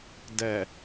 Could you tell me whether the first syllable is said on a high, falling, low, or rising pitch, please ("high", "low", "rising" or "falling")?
low